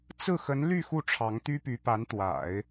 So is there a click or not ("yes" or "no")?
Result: no